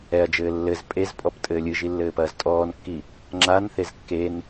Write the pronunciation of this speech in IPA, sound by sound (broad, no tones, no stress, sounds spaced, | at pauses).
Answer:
ɛ ɐ̯ d͡ʒ ɘː lː ɘ z pʼ e z pʼ ɔ p tʼ ɘː lʲ ɨ ʒ i lː ɘː p ɐː z tʼ ɔː n kː i | ŋ͡ǁ a n θ e z kː e n